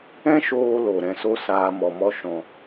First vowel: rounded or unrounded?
unrounded